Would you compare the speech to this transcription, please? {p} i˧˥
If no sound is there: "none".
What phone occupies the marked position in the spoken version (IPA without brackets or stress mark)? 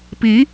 p